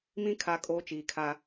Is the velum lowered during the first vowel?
yes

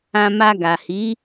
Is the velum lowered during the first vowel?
yes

